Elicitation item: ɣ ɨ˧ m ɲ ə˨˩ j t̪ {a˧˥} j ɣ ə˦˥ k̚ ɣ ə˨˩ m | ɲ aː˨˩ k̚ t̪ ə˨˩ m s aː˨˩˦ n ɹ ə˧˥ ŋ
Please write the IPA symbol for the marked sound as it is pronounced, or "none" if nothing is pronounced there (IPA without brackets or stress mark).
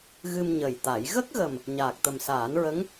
a˨˩˦